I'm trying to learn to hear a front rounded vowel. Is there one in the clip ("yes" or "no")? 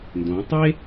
no